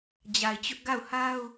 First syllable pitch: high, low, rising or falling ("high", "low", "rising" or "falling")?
low